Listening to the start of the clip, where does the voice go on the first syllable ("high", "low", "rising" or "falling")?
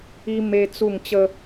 high